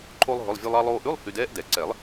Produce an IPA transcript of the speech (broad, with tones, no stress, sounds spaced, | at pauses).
ǃʰ o˥ lˠ ɦ ɵ˧˥˧ lˠ vʲ ɵ˧ lˠ ɑ˧ lˠ oː˧ ʔ ʉ˧˥˧ lˠ h y˧ d ɛː˥ ʔ d ɛ˨˩˦ ǀ ɛ˨˩˦ lˠ